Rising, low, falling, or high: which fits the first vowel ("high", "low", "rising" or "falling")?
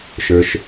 high